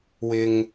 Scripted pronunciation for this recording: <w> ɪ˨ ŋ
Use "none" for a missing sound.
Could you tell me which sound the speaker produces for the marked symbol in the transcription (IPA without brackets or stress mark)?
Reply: w